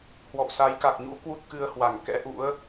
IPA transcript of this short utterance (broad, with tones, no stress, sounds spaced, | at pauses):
h w ɔ̰˧˨ w s a˨˦ j k a˨˩ k̚ ɲ ṵ˧˥ k w u˦˥ t̚ k ɨ˧ ə̯ h w a˧˩ ŋ k ɛ̰˧˥ ʔ ṵ˧˥ ə̯